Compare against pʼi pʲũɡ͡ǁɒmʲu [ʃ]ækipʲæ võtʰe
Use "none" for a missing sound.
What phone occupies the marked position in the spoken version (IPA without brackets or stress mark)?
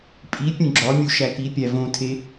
ʃ